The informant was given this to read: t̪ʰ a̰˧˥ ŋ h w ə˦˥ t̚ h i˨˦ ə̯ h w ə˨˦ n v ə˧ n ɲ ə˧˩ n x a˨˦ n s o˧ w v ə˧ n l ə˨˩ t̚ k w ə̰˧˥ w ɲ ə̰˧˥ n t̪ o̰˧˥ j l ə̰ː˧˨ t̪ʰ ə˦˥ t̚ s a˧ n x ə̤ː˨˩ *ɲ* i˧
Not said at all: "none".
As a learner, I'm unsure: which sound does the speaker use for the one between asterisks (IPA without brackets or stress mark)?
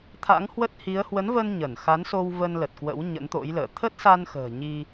ɲ